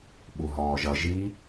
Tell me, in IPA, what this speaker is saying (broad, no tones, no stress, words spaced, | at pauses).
ɓuɦɔːʒʌ ʒi